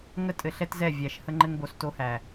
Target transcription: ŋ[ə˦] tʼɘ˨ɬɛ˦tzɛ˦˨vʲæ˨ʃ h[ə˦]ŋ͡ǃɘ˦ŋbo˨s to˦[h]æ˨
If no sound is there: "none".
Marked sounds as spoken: ə˦, ə˦, h

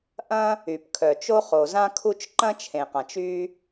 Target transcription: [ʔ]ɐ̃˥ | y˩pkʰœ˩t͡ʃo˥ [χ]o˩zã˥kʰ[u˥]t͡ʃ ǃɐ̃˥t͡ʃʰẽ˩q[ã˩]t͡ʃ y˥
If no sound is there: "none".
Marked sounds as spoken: ʔ, χ, u˥, ã˩

